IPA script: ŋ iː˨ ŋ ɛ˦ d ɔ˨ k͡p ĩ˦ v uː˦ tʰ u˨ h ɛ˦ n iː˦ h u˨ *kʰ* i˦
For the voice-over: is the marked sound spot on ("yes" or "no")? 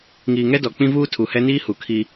yes